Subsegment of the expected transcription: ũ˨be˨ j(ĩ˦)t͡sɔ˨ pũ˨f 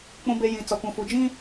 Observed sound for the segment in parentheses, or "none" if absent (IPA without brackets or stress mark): ĩ˨